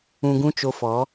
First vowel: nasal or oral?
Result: nasal